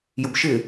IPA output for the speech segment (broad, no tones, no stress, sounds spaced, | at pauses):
j ʊ b ʃ ɪ